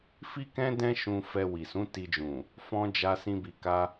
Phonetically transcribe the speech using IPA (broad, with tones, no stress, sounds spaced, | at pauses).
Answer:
f i˦ k ɛ̃˦ d ɛ̃˦ ʃ ũ˧ f ɛ˧ w i˨ s ũ˨˦ t i˧ d͡ʒ ũ˨ | f ɔ̃˧ d͡ʒ a˧ s ĩ˧ b i˨ k a˧